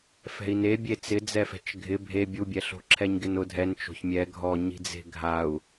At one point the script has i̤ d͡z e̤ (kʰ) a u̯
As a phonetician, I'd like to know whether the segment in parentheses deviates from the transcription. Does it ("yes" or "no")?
yes